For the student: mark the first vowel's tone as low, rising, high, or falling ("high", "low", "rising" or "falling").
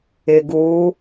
low